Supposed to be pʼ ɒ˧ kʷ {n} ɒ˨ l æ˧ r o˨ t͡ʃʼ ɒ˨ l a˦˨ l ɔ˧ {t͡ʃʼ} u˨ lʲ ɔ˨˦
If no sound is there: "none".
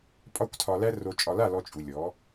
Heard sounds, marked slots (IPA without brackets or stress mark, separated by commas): tʰ, t͡ʃʼ